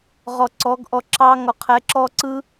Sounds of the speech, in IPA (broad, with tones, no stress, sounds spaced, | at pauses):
ʁ ɔ˨ ǀ ɔ˨˦ ɡ ʔ ɔ˧ ǁ ɑ˦ ŋ ɔ˨ qʰ ɛ˨˦ ǁ ɔː˦ ǀ ɯ˦